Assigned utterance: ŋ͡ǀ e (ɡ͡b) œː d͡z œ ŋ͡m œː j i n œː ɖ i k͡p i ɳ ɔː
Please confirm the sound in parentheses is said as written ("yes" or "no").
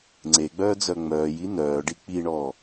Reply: yes